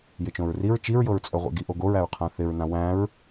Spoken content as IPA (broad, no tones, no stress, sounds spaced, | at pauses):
j ɪ t͡ʃ õ ɹ r i ɹ t͡ʃ i ɹ j ɤ ɹ t͡sʼ œ ʁʷ ḛ ɡ i ʔ o ɡ o ɹ æ ɹ qʰ ã θ ɪ ɹ n ã w æ̃ ɹ